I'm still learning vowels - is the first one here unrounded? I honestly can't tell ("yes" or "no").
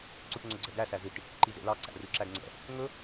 no